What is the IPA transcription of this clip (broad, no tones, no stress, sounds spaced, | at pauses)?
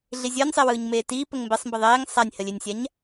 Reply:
ɮ i zʲ əː nʲ sˤ e w ɯː ɲ m eː t iː p ə ŋ m b e sˤ m b ə ðˤ eː ŋ sˤ a nʲ h ə lʲ e nʲ sʲ a ɲ